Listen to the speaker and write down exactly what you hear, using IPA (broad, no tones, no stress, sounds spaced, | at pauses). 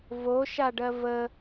v o ʃ a ɖ ɜ v ə